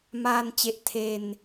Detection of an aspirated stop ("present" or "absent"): present